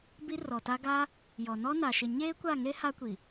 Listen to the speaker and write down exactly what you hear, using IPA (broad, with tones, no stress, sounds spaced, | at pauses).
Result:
b i˦ r ɔ˨ t a˦ ɡ a˦ | j ɔ˨ n ɔ˦ n a˨ ʃ ɪ˨ ɲ eː˦ kʷ a˦˨ ŋ e˦ h a˦ kʷ i˨